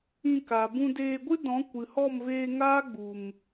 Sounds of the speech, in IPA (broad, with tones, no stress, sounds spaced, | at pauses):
ĩ˧ k a˨ b ũ˧ d eː˧ ɡʷ ɨ˦ d ɔ̃˨˦ kʷ ɨ˨ h ɔ˦˨ m v eː˧ ŋ aː˦ ɡ͡b u˨ m